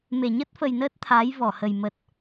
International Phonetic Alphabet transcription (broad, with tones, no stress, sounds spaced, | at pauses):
m e˧˩ ɲ ə˦˥ t̚ f ə˨˩ j n əː˦˥ t̚ t̪ʰ aː˨˦ j v ɔ˧˩ h ə˨˩ j m ə˨˩ t̚